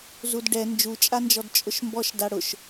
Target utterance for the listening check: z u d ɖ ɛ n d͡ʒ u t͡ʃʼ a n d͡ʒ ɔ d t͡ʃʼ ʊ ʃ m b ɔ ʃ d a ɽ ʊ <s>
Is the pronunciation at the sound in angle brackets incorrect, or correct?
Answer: incorrect